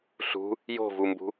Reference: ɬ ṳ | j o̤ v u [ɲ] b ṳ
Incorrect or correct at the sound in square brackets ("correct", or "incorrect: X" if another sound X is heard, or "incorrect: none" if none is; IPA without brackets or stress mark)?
incorrect: m